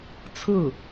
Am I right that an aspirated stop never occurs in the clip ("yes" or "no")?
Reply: no